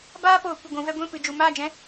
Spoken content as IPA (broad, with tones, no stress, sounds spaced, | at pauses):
b aː˦ p oː˨ kʷ ə˦˨ ɡʷ ũ˧ v ɛ˦ ɡʷ ĩ˦˨ p ɨ˨ d͡ʒ u˨ m aː˦˨ d͡ʒ ɛ̃˦